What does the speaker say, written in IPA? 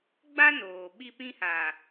ɡ͡ba˦noː˨ ɓi˦pĩ˦haː˨

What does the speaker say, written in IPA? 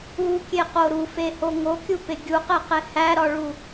ukʲeqo ɾufeho ŋokʲupe ɡʲuqeqe hæɾɒɭu

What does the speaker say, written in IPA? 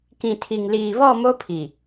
kĩ˨tʰi˨ŋliː˨βɔ˦˨ mo˦pʰi˨

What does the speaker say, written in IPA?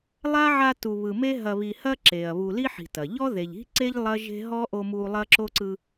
lˠa˥ʕa˦ tu˨βɯ˨me˥ ɦɐ˨βi˨hɐ˦ ǁe˩ɐ̯βu˨li˥ ħi̤˨tɐ˩ ʎɔ˥ðe˨ʎi̤˥ǀe˥ʎ lˠɐ˥ʒe̤˥ ɦɔ˥ ʔo˦mu˦ lˠɐ˥ǁo˥ǀɯ˦

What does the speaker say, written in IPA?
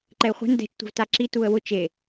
ǃɛɪ̯χʷɛ̤n dɛ̤t͡ʃtʷɛ̤v taǁi tuə̯wʊ t͡ʃe

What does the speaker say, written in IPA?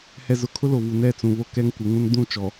hɛ˨zʊ˨kʰʊ˦ lo˨vu˨ nɛ˦˨t͡sũ˨βo˦ kɛ˦ŋkʷɪ˨˦ŋũ˦n dũ˦˨t͡ʃɔ˨

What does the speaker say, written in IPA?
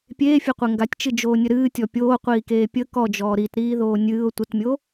pʲeːfʲeqʷe ŋɡatʲt͡ʃɨd͡ʒoːnʲə ɾɨːtʲɔ pʲoːqʷiːkeː pʲə kɔd͡ʒɔː ɾitɾiːðoː nʲɨːʊ̯ tʷətmʲo

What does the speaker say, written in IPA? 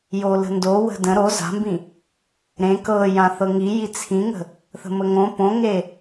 jolə̤ndo wə̤də̃ ɾo za̤mbĩ | ɾẽ kɤjã θɤŋiji t͡sʰĩŋə̤ | θə̤məŋõ põŋe

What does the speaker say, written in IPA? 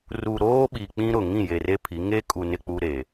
ru˨ɾoː˦ɓi˨ k͡pĩ˦ɾʊ˨ŋĩ˦˨je˨ re˦pʰi˨˦ ŋe˦kʼu˨ nɪ˨k͡pu˨ ɾe˨

